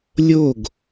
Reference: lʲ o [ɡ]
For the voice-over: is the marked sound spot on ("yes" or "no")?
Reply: yes